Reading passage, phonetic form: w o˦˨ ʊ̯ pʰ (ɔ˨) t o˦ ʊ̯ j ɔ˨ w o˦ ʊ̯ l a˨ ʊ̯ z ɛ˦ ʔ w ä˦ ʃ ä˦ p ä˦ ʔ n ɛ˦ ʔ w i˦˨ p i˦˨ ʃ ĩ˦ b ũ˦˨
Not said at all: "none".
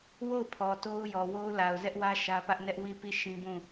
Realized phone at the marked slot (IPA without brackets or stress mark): ɔ˨